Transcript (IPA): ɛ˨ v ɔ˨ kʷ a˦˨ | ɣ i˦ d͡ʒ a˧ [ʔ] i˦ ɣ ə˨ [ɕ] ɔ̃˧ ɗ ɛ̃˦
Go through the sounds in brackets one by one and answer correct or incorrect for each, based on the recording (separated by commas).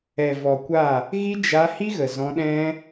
incorrect, incorrect